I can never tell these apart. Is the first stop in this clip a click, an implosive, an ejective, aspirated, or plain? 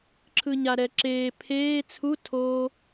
click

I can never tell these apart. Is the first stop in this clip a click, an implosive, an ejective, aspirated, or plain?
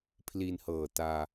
aspirated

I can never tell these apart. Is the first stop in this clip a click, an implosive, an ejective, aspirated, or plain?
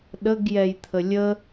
implosive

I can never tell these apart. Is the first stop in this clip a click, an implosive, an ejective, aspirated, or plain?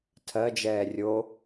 aspirated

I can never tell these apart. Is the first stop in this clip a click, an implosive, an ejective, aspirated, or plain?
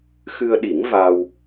implosive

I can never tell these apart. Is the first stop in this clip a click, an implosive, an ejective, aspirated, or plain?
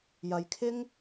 aspirated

